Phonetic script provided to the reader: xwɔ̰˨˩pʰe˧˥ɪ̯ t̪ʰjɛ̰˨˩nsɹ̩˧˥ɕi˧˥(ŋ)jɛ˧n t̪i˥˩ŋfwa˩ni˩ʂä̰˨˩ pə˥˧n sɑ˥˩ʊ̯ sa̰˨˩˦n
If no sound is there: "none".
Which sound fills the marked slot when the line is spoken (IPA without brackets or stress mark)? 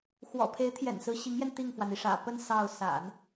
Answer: ŋ